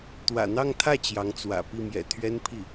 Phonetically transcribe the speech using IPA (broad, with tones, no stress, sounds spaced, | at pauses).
t̪ w ä̰˨˩ n̪ ɑ˥˧ ŋ t̪ʰ ä˥˩ t͡ɕ j ɑ˧˥ ŋ t͡s w ä̰˨˩ p i˥˩ m j ɛ̰˨˩ t̪ʰ ɥ ɛ˥ n pʰ i˥˩